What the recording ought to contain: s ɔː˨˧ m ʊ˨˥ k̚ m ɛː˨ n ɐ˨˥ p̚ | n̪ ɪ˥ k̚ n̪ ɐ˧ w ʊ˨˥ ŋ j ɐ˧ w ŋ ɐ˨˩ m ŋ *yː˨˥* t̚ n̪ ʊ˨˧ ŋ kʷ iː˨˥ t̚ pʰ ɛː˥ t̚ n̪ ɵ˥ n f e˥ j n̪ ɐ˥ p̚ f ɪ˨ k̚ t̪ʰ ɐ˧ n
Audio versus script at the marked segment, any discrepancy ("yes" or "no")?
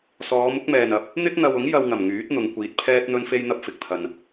no